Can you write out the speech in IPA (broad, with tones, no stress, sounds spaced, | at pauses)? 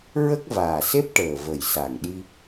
ɹ ə˦˥ k̚ v aː˨˩ s e˦˥ p̚ ʈ əː˨˩ v ə˨˩ j s a˨˩ ŋ ɗ i˧